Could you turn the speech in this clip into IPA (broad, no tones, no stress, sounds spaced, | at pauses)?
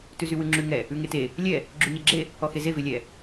t ʉ z y w ʉ ŋ͡ǁ ʉ ŋ ɛ | ʉ ŋ e t e | lʲ ɛ | ɡ͡ǁ y ɲ ɛ ɡ͡ǁ e | ɔ x e z e v e lʲ ɛ